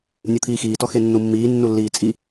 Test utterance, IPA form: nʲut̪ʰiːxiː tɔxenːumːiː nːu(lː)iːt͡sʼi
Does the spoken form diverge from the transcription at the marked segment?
no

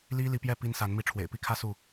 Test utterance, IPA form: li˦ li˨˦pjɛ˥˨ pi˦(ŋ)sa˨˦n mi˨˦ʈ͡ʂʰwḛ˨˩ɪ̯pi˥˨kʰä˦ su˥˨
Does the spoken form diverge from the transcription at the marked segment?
yes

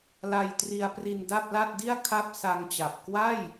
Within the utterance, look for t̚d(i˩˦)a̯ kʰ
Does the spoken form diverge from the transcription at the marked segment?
yes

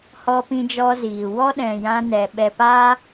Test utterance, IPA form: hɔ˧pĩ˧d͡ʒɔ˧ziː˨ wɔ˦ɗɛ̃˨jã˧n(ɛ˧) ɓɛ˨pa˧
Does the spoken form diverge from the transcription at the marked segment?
yes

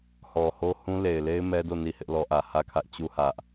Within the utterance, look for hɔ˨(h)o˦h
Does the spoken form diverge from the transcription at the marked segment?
no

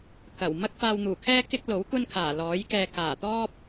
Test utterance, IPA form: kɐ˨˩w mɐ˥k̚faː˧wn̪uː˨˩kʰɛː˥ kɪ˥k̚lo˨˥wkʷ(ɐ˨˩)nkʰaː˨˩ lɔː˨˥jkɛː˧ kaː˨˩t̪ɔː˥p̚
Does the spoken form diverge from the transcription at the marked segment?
yes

